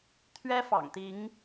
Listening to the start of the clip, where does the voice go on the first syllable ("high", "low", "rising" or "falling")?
high